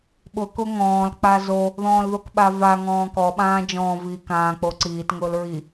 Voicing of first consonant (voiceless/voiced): voiced